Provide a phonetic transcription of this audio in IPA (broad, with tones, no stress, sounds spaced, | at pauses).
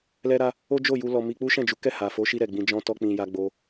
l ɛ˦ ɾ a˦ | o˦ d͡ʒ o˦˨ j u˧ l ɔ˧ m i˧ k͡p u˦ ʃ ɛ̃˦˨ d͡ʒ u˨˦ k ɛ˦˨ h a˨ f o˨˦ ʃ i˧ ɾ ɛ˨ ɡ͡b ĩ˧ d͡ʒ ɔ̃˦ t ɔ˦ k͡p ĩ˧ j a˦ ɡ͡b o˦